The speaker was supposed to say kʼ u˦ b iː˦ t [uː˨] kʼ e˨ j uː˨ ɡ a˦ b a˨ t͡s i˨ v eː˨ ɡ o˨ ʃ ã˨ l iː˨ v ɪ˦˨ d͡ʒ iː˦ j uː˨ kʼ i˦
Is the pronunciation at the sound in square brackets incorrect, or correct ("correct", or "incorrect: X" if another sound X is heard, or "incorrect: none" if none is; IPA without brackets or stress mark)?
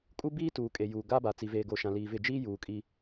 correct